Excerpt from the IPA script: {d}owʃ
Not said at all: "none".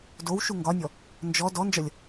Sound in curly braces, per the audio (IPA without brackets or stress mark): d